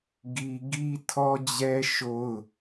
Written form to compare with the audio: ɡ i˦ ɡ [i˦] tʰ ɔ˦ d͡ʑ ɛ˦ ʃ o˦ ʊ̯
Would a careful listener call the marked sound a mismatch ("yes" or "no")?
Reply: no